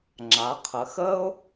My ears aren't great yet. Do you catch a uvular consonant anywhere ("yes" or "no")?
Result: yes